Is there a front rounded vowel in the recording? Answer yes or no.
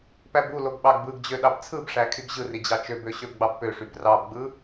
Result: yes